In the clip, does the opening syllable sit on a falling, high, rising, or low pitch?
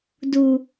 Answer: high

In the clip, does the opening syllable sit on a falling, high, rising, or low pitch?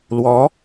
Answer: rising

